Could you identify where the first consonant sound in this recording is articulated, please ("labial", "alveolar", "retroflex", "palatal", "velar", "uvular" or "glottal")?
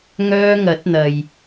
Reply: velar